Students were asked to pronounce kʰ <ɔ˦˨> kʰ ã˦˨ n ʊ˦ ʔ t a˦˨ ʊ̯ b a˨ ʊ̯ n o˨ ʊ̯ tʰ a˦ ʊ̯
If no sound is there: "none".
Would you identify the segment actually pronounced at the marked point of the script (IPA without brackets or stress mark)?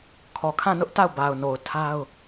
ɔ˨